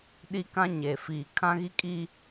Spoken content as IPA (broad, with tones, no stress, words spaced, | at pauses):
ɗi˦kã˦ɲe˨ fiː˨kʰã˦ɣi˦kʼi˦